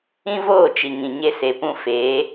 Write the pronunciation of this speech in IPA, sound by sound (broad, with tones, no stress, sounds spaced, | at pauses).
ĩ˦ v oː˦˨ t͡ʃ i˨ ŋ ĩ˨ ɲ e˧ s e˨ p ũ˧ f eː˨˦